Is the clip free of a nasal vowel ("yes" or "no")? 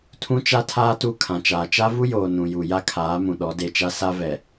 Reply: no